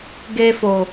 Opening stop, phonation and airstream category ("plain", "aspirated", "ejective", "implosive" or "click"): plain